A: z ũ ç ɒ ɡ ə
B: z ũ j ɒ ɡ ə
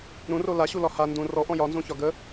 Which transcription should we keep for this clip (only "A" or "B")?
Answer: A